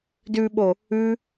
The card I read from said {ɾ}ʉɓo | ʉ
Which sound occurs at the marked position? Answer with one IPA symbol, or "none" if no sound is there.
d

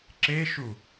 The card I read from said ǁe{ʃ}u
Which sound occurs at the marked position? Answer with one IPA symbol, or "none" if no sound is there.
ʃ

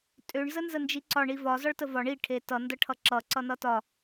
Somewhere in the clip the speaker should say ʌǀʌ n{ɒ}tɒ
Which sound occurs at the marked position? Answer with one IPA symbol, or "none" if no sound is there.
ʌ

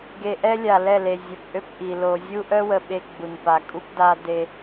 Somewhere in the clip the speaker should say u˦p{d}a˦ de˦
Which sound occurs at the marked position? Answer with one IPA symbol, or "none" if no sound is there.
d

